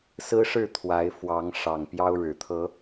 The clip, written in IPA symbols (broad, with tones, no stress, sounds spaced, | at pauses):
s ɹ̩˦ ʂ ɻ̩˥˨ t̪ʰ w a˨˦ ɪ̯ f w ɑ˨˦ ŋ ʂ ɑ˨˩ ŋ p j ɑ˦ ʊ̯ ɻ ɻ̩˨˩ t̪ʰ ɤ˨˦